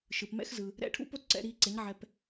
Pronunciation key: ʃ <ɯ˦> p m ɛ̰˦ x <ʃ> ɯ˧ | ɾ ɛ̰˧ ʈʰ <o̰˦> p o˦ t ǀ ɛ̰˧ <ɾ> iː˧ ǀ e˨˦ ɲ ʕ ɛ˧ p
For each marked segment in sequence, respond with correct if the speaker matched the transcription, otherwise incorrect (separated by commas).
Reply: incorrect, incorrect, incorrect, correct